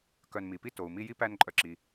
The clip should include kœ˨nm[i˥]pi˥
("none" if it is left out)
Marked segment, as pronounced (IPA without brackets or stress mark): i˩